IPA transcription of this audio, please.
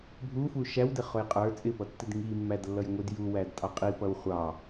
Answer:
bʱ u f u ʃ æ w d ɪ χ ʊ j qʼ ə˞ t͡sʼ ɪ p ʌ tː ɪ d ŋ i mː æ d lː ʌ j ŋʷ i d j u w æ d tʼ ɑ qʼ i p ʌ w χʷ ɑ

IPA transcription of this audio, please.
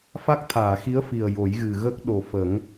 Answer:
f a˦˥ k̚ t̪ʰ aː˨˩˨ x i˧˥ ə̯ f i˨˩ ə̯ j o˨˩˦ j ɣ ɨ˨˩ ɣ ə˦˥ k̚ ɗ o˨˩ f ə˨˩˦ ŋ

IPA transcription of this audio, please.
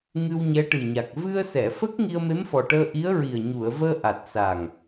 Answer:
ŋ ɨ˧ w ɲ ɛ˧˥ ʈ ɨ˨˩ ɲ a˨˩ k̚ v ɨ˧ ə̯ s ɛ˨˩˨ f ə˦˥ k̚ ŋ i˧ ə̯ m e˧˥ m f ɔ˨˩ ʈ əː˧ ʔ i˧˥ ə̯ ɹ i˨˩ ə̯ ɲ u˨˩˨ ə̯ v əː˧ ʔ a˨˩ t̚ s a˨˩ ŋ

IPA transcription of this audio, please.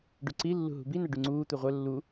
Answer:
ɖ ʉ ǀ i lː ṳ ɦ ṳ b i n̪ æ ɖ y ŋ͡ǀ uː t̪ u ʁʷ œ lː u

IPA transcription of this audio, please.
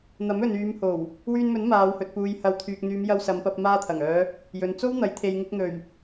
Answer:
n̪ ɐ˨˥ m ɵ˨ n yː˨˧ m h o˨˩ w | w yː˧ n m ɵ˨˥ n m aː˨˧ w h ɵ˨ t̚ p uː˨ j h ɐ˨˧ w t̪ʰ yː˨ k̚ n̪ yː˨˧ m j ɐ˧ w s ɐ˨˧ m p ɐ˧ p̚ m aː˧ t̪ʰ ɐ˨˩ ŋ œː˨˧ | j ɵ˨ n t͡s o˥ w n̪ ɐ˨˥ j t̪ʰ e˨ j ŋ ɪ˧ k̚ n̪ ɵ˨˩ ɥ

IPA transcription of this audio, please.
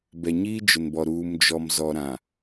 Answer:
b ɛ˨ ɲ iː˦ d͡ʒ ʊ˨ n b ɔ˨ ɾ uː˨ m d͡ʒ ɔ˨ m z ɔ˨ ɾ ã˨

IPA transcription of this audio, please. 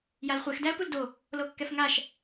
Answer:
j a l χʷ ɛ x d æ ə̯ p u l d o | l o kː ɛ f ŋ a ʃ

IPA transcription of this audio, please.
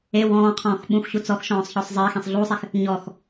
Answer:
e w ɔ̃ː qʰ ɔ̃ː x ɓ ũ x ɕ u t͡s ɔ x ʃ ɔ̃ː sˤ ç ɔ sˤ zˤ ɪː x ẽ sˤ ɮ uː sˤ e x | ɲ ɔ x

